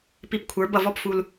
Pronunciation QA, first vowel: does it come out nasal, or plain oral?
oral